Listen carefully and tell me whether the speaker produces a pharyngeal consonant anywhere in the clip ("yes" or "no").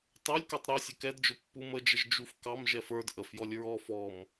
no